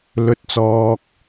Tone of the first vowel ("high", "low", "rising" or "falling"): low